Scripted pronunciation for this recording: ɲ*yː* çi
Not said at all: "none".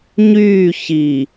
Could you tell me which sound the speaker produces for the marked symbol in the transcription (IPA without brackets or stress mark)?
yː